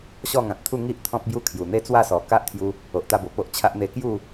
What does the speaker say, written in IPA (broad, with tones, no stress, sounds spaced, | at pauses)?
ɕ ɔ˥˧ ŋ ã˨ t̚ t̪ʰ u˥˧ ŋ i˦ ʔ t̪ʰ ɔ̃˦ p̚ b j u˦ kʰ j u˨˩ n̪ e˦ t͡s w a˥˧ s ɔ˨˩ k a˦ ʔ t̪ʰ j u˧ | o˨ ʔ t̪ a˧ b o˨˩ p o˦ ʔ t͡ɕʰ a˦ ʔ n̪ e˧ k j u˥˧